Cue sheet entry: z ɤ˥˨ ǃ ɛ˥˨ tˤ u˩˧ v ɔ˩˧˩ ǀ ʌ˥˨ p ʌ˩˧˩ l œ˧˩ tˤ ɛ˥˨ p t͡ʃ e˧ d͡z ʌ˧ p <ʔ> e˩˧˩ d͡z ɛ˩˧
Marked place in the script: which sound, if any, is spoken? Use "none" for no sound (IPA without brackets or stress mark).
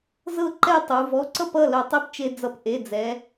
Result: ʔ